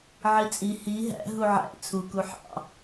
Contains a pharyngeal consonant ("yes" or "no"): yes